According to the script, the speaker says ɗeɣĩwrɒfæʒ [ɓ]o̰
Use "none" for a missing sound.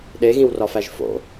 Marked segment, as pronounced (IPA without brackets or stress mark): f